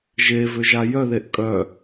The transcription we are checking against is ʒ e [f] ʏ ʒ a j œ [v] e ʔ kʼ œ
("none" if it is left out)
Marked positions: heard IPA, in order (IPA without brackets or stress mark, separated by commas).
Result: v, ð